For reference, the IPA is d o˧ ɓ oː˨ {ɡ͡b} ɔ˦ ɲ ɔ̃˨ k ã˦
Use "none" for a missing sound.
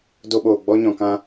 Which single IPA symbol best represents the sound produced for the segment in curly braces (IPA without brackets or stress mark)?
ɡ͡b